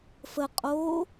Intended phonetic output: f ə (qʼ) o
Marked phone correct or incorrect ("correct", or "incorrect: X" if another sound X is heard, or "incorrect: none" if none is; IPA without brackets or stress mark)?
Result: correct